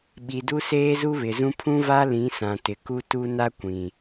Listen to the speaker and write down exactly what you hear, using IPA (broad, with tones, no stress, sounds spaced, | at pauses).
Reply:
ɓ i˨ d u˦ s eː˦ z u˦ β ɪ˨ z ũ˦ pʰ ũ˦ v a˦ l ĩ˨˦ s ã˨ t ɪ˨ k u˦ t u˦ n a˦ kʷ ĩ˨